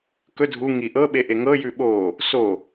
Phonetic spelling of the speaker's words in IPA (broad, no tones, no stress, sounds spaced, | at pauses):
k ɵ dʱ u ŋ i ʔ ɤ ɓ e ʔ e ŋ ɤ j ʉ ɓ o | s o